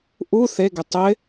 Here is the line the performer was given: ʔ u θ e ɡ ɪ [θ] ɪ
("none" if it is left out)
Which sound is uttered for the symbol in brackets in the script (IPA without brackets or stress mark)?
tˤ